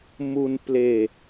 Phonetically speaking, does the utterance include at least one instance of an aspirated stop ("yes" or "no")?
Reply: no